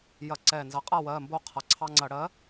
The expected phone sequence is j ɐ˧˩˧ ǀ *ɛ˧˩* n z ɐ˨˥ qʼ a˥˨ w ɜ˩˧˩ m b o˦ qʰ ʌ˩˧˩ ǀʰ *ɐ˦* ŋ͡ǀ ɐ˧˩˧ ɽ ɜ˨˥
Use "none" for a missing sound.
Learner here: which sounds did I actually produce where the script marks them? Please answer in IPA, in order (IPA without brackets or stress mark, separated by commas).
ɛ˧˩, ɑ˦